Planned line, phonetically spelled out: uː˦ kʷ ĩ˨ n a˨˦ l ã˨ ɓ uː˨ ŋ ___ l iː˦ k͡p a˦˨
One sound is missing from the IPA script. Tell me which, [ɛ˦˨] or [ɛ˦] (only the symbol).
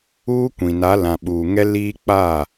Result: ɛ˦